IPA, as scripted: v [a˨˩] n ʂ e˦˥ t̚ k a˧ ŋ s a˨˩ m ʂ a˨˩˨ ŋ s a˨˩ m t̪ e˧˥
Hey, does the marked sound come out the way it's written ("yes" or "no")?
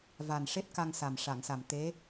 yes